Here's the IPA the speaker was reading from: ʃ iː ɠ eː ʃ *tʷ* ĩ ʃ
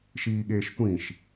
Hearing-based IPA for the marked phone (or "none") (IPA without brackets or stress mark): tʷ